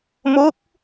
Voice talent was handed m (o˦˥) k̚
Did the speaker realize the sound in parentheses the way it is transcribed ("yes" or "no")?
yes